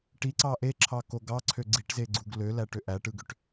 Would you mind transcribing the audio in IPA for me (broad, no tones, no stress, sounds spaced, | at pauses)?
ʈ i ǀ ɑ ʔ e ǁʰ ɑ k o ɡ ɑ ǀʰ ø ɡ͡ǀ i ʈ z e ɡ͡ǀ u ɡ l ø l æ ʈ ø ʔ æ ʈ ɯ ɡ ø ʈ